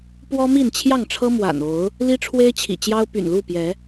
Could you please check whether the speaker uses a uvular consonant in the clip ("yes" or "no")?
no